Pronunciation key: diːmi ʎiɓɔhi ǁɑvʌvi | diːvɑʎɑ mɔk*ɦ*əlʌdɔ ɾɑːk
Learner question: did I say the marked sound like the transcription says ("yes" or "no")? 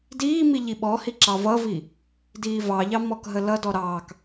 yes